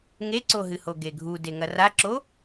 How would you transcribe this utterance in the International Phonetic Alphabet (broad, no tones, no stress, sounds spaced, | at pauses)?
ŋ e ǀ o ɦ ɨ h o ɡ e ɡʱ u d e ŋ ɐ r a ǁ o